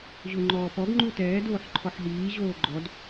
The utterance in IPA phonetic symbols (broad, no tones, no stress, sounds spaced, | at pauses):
ʑ o ŋ͡ǃ ɔː p ɔ ɡ ŋ͡ǃ u t ɛː d oː ħ ǃʰ ɔ ħ ɦ iː ʑ oː ɡ͡ǃ ɔ d